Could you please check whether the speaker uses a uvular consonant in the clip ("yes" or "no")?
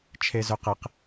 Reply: yes